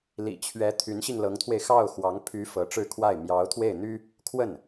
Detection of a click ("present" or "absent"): absent